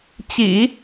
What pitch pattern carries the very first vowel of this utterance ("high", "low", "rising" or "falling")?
low